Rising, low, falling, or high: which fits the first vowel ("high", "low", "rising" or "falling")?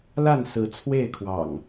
falling